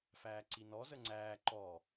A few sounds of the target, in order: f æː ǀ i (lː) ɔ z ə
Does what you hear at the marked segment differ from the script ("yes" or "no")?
yes